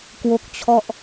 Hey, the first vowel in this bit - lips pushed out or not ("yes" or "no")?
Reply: yes